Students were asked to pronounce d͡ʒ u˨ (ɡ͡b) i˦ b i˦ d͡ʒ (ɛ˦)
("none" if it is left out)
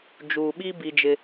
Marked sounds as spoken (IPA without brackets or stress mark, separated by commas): ɓ, ɪ˦